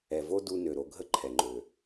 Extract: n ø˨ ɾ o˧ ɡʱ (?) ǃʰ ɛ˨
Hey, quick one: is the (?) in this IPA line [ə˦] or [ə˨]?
ə˦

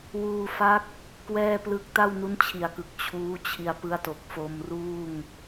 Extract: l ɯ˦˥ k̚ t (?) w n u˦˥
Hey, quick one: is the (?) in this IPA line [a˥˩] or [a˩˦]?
a˥˩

